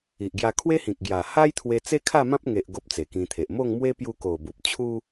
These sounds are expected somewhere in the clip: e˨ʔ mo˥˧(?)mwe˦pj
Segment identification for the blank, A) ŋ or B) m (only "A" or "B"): A